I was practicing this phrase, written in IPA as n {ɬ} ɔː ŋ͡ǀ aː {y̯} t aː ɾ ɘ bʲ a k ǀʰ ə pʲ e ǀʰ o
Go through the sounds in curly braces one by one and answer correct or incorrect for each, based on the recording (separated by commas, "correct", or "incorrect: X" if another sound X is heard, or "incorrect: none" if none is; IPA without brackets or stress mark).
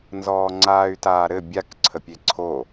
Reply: incorrect: z, correct